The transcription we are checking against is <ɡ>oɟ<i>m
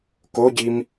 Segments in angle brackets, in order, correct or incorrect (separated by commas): incorrect, correct